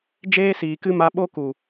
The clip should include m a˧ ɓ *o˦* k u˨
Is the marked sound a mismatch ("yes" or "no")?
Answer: no